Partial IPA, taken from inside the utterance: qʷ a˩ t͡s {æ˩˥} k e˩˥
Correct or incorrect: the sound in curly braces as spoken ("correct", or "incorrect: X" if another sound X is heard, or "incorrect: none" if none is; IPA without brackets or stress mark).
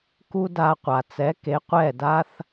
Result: incorrect: ɛ˩˥